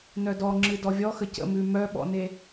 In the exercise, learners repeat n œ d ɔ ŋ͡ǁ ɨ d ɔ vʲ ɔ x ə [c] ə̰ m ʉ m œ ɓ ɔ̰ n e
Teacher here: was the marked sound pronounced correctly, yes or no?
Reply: yes